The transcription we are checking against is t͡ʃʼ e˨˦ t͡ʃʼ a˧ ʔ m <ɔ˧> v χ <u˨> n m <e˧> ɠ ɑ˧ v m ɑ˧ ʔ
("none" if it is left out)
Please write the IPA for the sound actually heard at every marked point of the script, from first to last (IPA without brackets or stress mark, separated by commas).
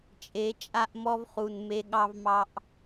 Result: ɔ˧, u˨, e˧